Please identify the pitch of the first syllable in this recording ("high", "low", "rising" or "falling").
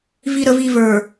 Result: low